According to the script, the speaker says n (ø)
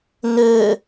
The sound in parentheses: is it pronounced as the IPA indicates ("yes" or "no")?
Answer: yes